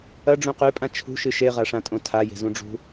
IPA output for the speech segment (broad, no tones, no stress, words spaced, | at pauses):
ɐɖ͡ʐũ qʉpʼã t͡ʃʰṳʃɨ ʃeʁaʂãtʼõ tʰaje̤zũɖ͡ʐṳ